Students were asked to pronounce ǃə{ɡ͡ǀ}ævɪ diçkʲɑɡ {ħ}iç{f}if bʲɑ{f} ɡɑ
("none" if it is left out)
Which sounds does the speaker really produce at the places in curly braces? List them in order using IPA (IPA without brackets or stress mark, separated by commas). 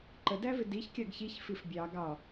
d, ç, f, none